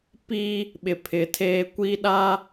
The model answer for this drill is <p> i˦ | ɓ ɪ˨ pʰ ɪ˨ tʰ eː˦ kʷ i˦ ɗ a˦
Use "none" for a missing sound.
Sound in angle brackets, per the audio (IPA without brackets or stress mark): p